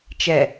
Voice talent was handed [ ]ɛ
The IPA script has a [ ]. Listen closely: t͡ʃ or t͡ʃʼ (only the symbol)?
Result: t͡ʃ